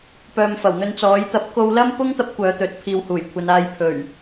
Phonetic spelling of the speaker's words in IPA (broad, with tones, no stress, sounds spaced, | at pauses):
p œː˨ m f ɐ˨˩ w n̪ ɵ˧ n t͡s ɔː˨˥ j t̪ ɐ˨˥ p̚ k o˧ w l ɐ˥ m p ʊ˥ ŋ t̪ ɐ˥ p̚ kʷ œː˨˧ t̪ ɵ˨˥ t̚ pʰ iː˨˧ w h uː˨˩ j kʷʰ ɐ˨˧ n aː˨ j pʰ ɵ˨˩ ɥ